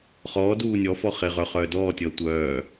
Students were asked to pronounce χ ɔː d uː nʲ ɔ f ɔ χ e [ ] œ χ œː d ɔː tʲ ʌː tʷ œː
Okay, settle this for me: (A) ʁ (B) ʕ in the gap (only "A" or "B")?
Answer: A